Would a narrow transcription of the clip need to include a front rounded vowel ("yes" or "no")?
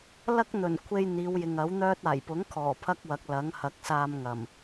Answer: yes